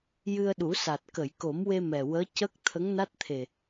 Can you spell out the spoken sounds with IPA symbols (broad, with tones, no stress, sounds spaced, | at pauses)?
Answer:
j ɨ˧ ə̯ ɗ u˨˩˦ s a˨˩ t̚ k ə˨˩˨ j k o˨˩˦ m w e˧ m ɛ˨˩ w əː˧˥ c ə˦˥ k̚ t̪ʰ ə˧˥ ŋ n a˦˥ t̚ t̪ʰ e˨˩